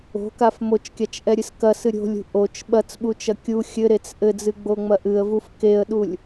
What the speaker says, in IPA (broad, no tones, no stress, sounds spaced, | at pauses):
o̤ k a f m o t͡ʃ kʲ a t͡ʃ ʔ ɛ ɾʲ ɨ s k ɐ s ɨ ɾʲ o̤ lʲ ṳ ʔ o t͡ʃ ɓ ɐ t͡s ɓ u t͡ʃ ɐ kʲ u xʲ ɘ ɾ e t͡s ʔ ɘ d͡z ɨ ɡ͡b o ŋ͡m ɐ ʔ ɨ ə̯ v u f k e ə̯ ɗ u lʲ